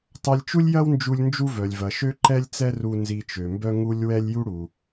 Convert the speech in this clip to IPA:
tˤ ɐ˧ lʲ t͡ʃ u˥ lʲ j ɐ˥ w n d͡ʒ u˧ lʲ n d͡ʒ u˥ v œ˩ lʲ v ɐ˩ ʃ ø˥ ǃ ɛ˥ lʲ t͡s ɛ˥ r u˧ n z i˧ t͡ʃ ø˩ m b œ˥ ŋ u˥ lʲ w ɛ˥ lʲ j u˥ ɽ u˩

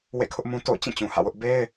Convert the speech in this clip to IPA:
w ḛ˦˨ kʰ ʊ˦ ʔ m ũ˦ t o̰˦˨ ʊ̯ t͡ɕ ĩ˦˨ t͡ɕ ũ˨ h ä̰˦˨ w ʊ˦ ʔ b e˦ ɪ̯

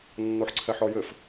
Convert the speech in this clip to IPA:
nː o ħ ǀʰ ɛ ħ ɔ j ɘ f

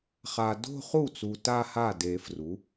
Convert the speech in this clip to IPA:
χ a˨ d o̤˥˧ χ u˥˩ t͡s u˨ t a˥˧ h a˥˩ d e˨˩˦ f r u˩˥

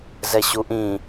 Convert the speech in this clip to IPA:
z ɛ ɕ u ʔ ĩ

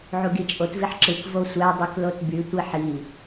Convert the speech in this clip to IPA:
ʕ u ɡ i t͡ʃʼ o t v i ħ ǁ ɯ k v o sʷ æ dˤ y k l o t b y tʷ i ħ i

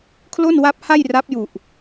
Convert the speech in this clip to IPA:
kʰ l o˥˩ n w a˦˥ p̚ h a˥˩ j r a˦˥ p̚ j u˨˩ ʔ

